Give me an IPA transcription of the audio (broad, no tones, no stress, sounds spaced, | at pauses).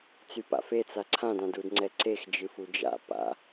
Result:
t͡s y p a̰ f e t͡s a ǀʰ ã d ã d u d ŋ͡ǀ ɛ ǀ e x d͡ʒ ɨ f u d͡ʒ a̰ p a̰